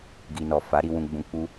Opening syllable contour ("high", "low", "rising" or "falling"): low